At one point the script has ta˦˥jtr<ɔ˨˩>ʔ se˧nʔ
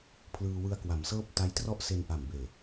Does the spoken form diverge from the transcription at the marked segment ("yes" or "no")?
yes